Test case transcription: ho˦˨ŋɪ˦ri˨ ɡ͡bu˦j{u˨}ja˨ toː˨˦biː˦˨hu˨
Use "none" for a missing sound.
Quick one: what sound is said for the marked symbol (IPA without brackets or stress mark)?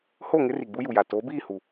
u˨